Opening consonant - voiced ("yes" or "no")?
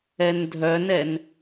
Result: yes